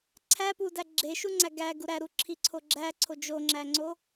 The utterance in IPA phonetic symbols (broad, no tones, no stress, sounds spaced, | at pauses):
ǀʰ æ p u d æ ɡ͡ǁ e ʃ u ŋ͡ǀ æ ɡ æ ɡ u ɾ æ ɾ u ǁʰ i ǀʰ o ɡ͡ǁ æ ǀʰ o d͡ʒ o ŋ͡ǁ æ ŋ͡ǀ o